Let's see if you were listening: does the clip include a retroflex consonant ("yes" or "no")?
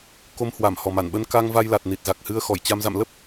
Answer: no